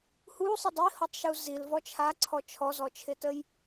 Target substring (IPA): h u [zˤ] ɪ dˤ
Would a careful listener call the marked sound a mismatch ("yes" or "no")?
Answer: yes